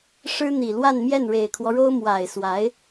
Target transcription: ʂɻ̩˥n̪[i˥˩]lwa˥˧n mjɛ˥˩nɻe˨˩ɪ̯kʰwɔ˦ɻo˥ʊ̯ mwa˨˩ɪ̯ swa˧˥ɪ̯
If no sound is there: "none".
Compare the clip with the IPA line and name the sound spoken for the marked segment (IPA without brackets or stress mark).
i˨˩